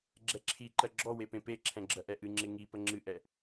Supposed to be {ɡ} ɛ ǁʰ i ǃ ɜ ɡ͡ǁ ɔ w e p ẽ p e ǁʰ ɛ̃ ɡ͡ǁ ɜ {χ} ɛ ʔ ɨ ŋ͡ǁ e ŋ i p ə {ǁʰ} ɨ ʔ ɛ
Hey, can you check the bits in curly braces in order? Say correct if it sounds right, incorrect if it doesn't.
incorrect, incorrect, incorrect

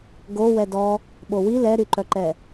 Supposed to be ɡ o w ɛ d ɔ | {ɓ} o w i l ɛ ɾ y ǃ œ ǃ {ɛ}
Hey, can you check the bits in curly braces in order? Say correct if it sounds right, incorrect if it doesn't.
correct, correct

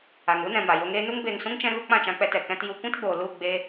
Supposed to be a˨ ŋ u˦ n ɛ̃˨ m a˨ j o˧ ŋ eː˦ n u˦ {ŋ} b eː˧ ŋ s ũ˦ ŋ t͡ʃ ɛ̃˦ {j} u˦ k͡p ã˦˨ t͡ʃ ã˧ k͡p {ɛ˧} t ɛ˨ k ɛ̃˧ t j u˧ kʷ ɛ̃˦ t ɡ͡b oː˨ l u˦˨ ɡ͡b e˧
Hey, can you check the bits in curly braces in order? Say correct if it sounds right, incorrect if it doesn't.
correct, incorrect, correct

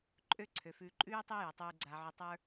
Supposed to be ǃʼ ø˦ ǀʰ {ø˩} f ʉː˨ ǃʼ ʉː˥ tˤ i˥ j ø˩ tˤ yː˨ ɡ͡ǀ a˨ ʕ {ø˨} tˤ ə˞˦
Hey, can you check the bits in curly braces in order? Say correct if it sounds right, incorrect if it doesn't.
correct, incorrect

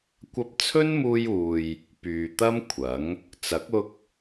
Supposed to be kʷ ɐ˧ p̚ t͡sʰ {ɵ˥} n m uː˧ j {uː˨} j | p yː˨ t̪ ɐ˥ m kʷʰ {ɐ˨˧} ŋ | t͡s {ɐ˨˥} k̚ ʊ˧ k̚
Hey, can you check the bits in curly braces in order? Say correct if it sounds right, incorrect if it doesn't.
correct, correct, incorrect, correct

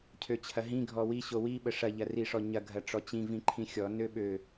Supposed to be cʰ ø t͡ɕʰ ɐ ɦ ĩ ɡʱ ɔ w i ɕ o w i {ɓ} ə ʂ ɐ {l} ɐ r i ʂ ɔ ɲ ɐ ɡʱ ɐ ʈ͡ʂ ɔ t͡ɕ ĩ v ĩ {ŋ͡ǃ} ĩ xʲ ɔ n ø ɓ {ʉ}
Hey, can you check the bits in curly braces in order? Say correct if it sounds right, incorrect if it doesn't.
correct, incorrect, incorrect, incorrect

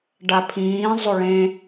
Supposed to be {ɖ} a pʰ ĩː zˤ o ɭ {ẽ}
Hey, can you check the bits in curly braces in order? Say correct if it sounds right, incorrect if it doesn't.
correct, correct

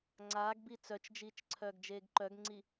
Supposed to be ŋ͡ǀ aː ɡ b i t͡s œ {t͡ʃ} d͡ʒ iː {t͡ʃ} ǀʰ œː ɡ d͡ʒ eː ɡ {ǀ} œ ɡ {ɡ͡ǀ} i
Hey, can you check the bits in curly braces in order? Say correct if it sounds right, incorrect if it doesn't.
correct, correct, incorrect, incorrect

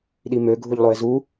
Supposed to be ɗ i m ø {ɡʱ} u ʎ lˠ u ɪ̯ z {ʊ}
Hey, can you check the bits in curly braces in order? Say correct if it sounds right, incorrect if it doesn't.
correct, incorrect

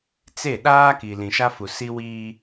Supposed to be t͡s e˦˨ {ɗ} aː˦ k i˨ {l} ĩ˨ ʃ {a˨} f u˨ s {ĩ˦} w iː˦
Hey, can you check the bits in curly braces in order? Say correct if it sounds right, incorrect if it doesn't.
correct, correct, incorrect, incorrect

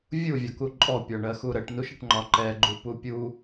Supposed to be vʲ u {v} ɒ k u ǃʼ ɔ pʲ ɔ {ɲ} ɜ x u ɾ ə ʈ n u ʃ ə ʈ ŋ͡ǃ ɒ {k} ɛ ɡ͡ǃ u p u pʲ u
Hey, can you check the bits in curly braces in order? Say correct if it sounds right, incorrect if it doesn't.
incorrect, incorrect, incorrect

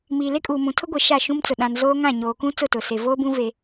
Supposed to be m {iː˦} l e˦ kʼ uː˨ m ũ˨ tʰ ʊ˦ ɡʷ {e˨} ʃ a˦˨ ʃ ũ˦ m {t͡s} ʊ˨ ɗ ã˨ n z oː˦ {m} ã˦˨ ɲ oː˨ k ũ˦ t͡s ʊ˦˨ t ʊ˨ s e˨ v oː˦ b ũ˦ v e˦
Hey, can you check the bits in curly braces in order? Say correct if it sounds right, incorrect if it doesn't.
incorrect, correct, correct, incorrect

